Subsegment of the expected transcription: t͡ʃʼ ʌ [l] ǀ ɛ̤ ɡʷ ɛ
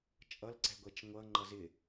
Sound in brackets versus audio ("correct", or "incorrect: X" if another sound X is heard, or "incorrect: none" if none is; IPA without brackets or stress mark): correct